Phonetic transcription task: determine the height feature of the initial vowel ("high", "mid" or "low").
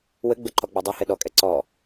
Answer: mid